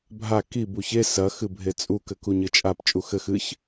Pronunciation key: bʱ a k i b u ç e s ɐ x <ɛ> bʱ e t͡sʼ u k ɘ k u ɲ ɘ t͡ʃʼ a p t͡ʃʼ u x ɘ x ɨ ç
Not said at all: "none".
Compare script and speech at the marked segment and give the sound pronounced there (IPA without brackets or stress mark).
ɨ